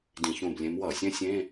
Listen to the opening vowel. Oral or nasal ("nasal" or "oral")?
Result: nasal